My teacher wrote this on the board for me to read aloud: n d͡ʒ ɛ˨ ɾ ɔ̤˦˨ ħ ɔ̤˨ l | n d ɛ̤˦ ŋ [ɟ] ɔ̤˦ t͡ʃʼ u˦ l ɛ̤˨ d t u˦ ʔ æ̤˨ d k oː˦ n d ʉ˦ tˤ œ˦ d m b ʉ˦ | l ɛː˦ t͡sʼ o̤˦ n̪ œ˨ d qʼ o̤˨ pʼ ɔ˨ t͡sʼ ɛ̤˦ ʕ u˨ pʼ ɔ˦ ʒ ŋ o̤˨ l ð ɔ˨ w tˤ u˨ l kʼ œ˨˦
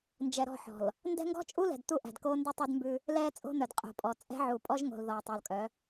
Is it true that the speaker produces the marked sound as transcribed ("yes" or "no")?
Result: no